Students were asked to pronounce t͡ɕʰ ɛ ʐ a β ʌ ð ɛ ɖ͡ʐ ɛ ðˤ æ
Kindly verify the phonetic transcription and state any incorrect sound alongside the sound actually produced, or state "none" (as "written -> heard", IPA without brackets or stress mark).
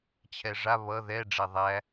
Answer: none